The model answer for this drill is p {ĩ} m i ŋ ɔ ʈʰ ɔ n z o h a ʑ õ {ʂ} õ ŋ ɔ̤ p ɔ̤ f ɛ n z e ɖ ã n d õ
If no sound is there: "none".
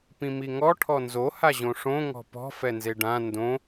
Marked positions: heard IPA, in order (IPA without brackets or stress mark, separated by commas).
ĩ, ʂ